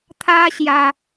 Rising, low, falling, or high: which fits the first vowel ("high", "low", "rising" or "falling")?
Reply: high